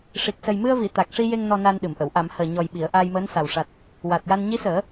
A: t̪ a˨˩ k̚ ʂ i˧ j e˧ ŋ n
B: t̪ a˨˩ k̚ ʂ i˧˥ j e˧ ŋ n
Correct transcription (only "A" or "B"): A